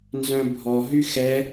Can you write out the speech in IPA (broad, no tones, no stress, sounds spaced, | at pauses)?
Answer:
n z œ̃ bʱ ɔ ɦ y x ɛ